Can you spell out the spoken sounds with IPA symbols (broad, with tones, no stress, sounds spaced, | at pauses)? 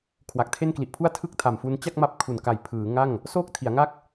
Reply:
kʰ w a˨˩ k̚ tʰ e˥˩ n k l i˨˩ ʔ pʰ u˥˩ a̯ tʰ ɯ˥˩ k̚ tʰ a˨˩ m f u˧ n t͡ɕ a˥˩ k̚ m a˦˥ p̚ kʰ u˨˩ n k a˨˩ j pʰ ɯː˩˦ ŋ a˥˩ ŋ | s oː˥˩ k̚ tʰ i˩˦ a̯ ŋ a˥˩ k̚